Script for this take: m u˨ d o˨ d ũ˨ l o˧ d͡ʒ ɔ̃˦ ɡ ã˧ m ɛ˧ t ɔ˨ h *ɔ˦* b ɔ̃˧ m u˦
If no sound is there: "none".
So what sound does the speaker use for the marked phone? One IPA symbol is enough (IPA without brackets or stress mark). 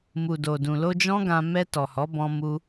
ɔ˨˦